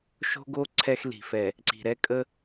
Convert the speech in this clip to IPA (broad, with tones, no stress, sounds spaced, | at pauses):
ʃ o̤˦ ɡ o˦ ǀʰ ɛ˦ x l i̤˨ f ɛ˨ | ǀ i̤˨ ɾ ɛ˦ kʼ ə˦